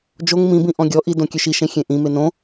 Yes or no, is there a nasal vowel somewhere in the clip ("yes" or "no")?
yes